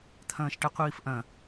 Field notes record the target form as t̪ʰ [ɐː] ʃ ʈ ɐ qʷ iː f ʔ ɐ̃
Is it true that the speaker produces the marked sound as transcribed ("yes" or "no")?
no